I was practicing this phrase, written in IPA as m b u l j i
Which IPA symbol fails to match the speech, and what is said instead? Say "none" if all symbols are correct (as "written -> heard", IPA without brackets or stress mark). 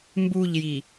l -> ʎ